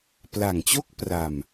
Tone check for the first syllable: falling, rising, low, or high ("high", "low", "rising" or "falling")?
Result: low